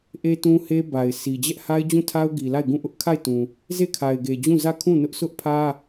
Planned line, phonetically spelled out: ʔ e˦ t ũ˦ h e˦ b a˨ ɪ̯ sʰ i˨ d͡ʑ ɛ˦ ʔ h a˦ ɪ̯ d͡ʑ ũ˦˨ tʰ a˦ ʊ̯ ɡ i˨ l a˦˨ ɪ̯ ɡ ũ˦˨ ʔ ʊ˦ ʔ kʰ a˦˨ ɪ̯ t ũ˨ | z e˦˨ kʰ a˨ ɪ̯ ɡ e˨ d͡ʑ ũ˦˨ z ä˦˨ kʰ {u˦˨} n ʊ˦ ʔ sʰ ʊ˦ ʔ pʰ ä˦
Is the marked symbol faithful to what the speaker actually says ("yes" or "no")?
no